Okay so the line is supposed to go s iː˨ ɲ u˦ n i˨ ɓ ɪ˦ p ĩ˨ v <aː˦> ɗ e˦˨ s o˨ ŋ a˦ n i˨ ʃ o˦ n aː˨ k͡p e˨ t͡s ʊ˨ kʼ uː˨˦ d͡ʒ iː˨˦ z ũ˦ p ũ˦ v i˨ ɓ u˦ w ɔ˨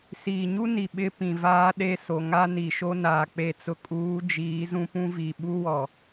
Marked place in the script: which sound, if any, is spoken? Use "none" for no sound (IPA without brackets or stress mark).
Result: aː˦